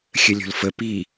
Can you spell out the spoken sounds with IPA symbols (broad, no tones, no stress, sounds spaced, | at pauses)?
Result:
xʲ ə lʲ o̤ l f ə p i